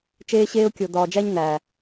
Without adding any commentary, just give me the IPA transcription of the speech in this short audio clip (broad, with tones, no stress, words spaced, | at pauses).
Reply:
t͡ʃeː˧ɕeː˧ʊ̯kʲo˨ dɒː˨d͡ʒæ˧ɲ næ˨